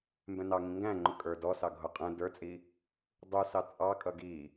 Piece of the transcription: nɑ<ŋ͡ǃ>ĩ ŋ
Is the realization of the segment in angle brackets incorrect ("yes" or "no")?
yes